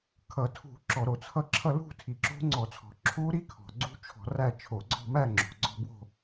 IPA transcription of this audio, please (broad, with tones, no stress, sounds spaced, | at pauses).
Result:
kʰ ʌ˧˩˧ tʰ ṳ˧˩˧ ǁ ɔ˧˩˧ ɾ o˧˩˧ t͡sʰ ʌ˦˥ ǁʰ ʌ˥˧ l ṳ˥˧ tʰ i˨˩ ǁ o̤˦˥ ŋ͡ǀ ɔ˧˩˧ t͡sʰ ɔ̤˨˩ ǁʰ u˦˥ ɾ i˦˥ kʰ ɔ̤˨˩ ɡ͡ǀ ṳ˦˥ t͡ʃʰ ɔ̤˧˩˧ r æ˥˧ t͡ʃʰ o˧˩˧ ɡ͡ǀ ɔ̤˥˧ m æ˥˧ ŋ͡ǁ o̤˨˩ ɡ͡ǀ ɔ̤˥˧ b w o̤˥˧